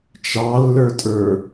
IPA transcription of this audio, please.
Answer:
t͡ʃ ɑ lː ə˞ tʼ ə˞

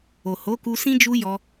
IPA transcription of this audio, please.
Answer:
o˨ h o˨˦ k u˧ s ĩ˦ d͡ʒ u˦ j ɔ˧

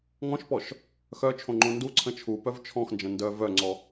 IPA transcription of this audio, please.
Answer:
ŋ ɔ̃ ʃ p ɔ ʃ | x œ t͡ʃʰ õ ŋ͡ǃ õ n d u ǀʰ ə̃ t͡ʃʰ u p œ v t͡ʃʰ ɔ̃ x n d͡ʒ ə̃ n d œ v œ ŋ͡ǀ ɔ

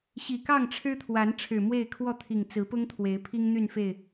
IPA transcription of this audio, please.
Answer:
ɕ i˨˩ k ɑ˥˨ ŋ ʈ͡ʂʰ ɻ̩˦ t̪ʰ w a˨˦ n ʈ͡ʂʰ ɻ̩˨˩ m w e˥˨ ɪ̯ kʰ w ɔ˥˨ t̪ʰ i˨˩ ŋ t͡s ɹ̩˨˦ p ʊ˦ ŋ t̪ʰ w e˨˦ ɪ̯ pʰ i˦ ŋ n̪ y˥˨ n f e˥˨ ɪ̯

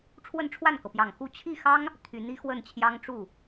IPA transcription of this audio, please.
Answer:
ʈ͡ʂʰ w ə˥˧ n ʈ͡ʂʰ w a˥˩ n k ɤ˩ p j ɑ˨˩ ŋ x u˥˧ t͡ɕʰ i˥˩ x ɑ˥ ŋ | t̪ʰ y˧˥ n i˧˥ x w ə˥˩ n t͡ɕʰ j ɑ˥ ŋ ʈ͡ʂ u˥˩

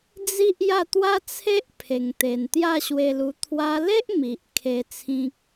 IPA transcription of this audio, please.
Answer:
d͡z i˦ ʔ j a˥˧ t̪ w a˦ t͡sʰ e˦ ʔ pʰ e˨˩ ŋ t̪ e˨˩ n t̪ j a˥˧ ɕ w e˧ l u˧ t̪ʰ w a˧ l e˦ ʔ m i˨ ʔ kʰ e˧ t͡sʰ ĩ˦ k̚

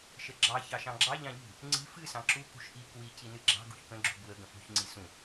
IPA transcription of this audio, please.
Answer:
ʃ ə ɡ͡ǁ ɑ ç ɑ ʃ ɑ̃ ɡ͡ǁ ɑ ʎ ɑ̃ ʎ ṳ | ŋ͡ǀ i̤ f ɨ s ɑ̃ ǁ u k ṳ ʃ ʔ i k w i c i n ɨ ɡ͡ǁ ɑ̤ ɡ ṳ ç k ə̃ ɡ͡ǁ ṳ b w ə ɡ ə̃ f ṳ ç ŋ͡ǀ i s ũ

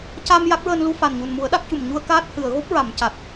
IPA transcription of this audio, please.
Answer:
c a˧ m j a˦˥ k̚ ɹ əː˧ n l u˧ f a˨˩ n ɲ u˨˩ n m u˨˩˦ ə̯ ɗ a˦˥ k̚ c u˨˩ m ɲ u˧ ə̯ k aː˦˥ t̚ h ɨ˨˩˨ ə̯ ɣ o˦˥ p̚ ɹ a˨˩˨ m c a˨˩ t̚

